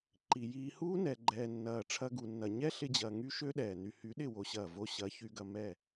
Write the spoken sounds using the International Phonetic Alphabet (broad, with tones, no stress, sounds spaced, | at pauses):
ǃ i˨ j iː˧ h uː˦ n ɛ˨ ɡ͡ǃ ɛː˨ nː ɐː˨ ʈ͡ʂʰ ɐ˧ ɡ u˧ nː ɐ˧ ɲ ɛ˦ ɬ ɪ˧ d͡ʑ ɐː˨ ŋ y˦ ʃ ø˦ ɗ ɛː˨ n y˨ h y˨˦ ɗ ɪ˦˨ w o˧ ɕ ɐː˦˨ v o˧ ɕ ɐ˨˦ ç y˧ ɡ ɐ˧ m ɛ˦˨